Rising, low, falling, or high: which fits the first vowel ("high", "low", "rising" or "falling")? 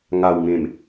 low